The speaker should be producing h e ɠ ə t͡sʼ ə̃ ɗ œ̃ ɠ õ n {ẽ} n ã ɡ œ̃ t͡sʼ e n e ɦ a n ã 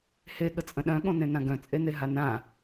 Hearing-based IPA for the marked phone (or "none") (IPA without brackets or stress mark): ẽ